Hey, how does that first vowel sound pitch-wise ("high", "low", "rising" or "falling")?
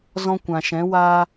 high